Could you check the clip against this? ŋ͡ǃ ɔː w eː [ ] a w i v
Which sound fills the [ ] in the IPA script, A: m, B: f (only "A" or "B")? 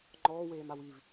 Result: A